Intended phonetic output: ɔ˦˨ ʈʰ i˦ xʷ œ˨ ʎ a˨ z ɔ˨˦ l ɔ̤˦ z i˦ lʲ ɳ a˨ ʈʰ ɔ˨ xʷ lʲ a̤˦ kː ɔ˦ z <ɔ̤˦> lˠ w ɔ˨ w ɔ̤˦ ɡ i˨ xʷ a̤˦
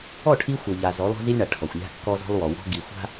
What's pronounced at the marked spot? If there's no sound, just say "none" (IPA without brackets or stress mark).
ɔ̤˦